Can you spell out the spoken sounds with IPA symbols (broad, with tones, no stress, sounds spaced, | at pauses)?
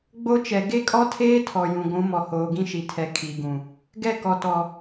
ɡ͡b o˦ t͡ʃ ɛ˨ ɡ e˦ kʼ ɔ˦ tʰ eː˦ tʰ ɔ˨ j ũ˨ ɡʷ ũ˨˦ m ɔ˨ h oː˨ ɡ ĩ˦ ʃ i˨ tʰ ɛ˨ kʰ i˨ ɡ ũ˨ | ɡ ɛ˦˨ k ɔ˨ t ɔ˨